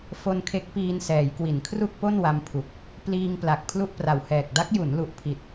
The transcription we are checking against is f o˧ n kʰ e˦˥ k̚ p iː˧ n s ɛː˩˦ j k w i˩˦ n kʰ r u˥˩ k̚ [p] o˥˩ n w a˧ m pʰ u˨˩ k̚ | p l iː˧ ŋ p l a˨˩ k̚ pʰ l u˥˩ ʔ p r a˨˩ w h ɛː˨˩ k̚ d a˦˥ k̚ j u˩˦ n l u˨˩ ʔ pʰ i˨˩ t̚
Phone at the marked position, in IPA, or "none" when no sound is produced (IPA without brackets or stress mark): p